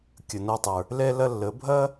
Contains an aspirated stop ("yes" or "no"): no